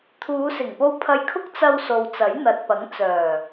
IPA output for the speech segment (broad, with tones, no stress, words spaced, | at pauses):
t̪ʰuː˨˧sɪ˨˩ŋpo˧w pʰɐ˧jkʰʊ˥k̚t͡sɐ˧wso˨w t͡sɐ˨˥jn̪ɐ˨t̚pɐ˨˥ŋ t͡sœː˨˩